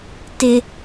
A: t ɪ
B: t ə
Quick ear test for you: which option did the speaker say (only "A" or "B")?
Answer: A